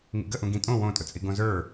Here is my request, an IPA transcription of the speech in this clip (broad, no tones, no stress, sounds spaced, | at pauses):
ŋ ḭ ɡ ə ʔ ũ ɡ ĩ tʼ õ w õ tʼ ʊ t͡sʼ i ɡ õ z ə˞